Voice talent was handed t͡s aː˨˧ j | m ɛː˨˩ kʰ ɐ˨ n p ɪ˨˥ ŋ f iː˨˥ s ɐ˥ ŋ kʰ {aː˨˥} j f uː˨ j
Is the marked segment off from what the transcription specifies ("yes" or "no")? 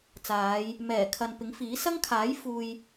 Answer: no